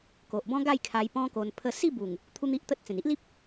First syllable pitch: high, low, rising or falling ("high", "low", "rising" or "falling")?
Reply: low